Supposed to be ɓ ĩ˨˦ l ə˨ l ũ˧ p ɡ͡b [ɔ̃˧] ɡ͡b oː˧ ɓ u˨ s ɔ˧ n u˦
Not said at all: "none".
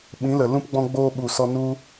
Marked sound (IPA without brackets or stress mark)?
ɔ̃˧